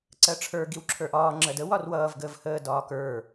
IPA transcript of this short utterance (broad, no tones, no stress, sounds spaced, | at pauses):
ǀ ɜ ʈ͡ʂʰ ə˞ ɡ i w ǁʰ ə˞ ʔ ɒː ŋ͡ǁ ɜ d ə w ɒ r w ʌː v ɡ əː v h əː d ɒː k ə˞